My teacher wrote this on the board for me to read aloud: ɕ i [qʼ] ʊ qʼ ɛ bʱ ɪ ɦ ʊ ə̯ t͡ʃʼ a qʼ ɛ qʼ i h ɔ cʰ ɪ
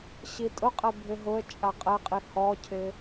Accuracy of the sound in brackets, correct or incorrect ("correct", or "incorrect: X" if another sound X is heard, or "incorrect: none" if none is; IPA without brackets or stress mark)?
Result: incorrect: tʼ